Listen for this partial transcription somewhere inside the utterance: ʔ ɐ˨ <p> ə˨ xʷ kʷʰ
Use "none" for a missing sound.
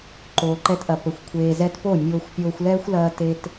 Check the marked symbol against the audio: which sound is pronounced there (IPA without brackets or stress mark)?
p